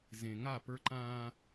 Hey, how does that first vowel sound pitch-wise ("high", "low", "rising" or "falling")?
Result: low